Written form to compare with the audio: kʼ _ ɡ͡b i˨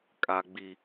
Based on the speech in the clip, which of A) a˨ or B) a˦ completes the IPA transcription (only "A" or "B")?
A